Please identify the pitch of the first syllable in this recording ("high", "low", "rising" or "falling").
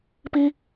high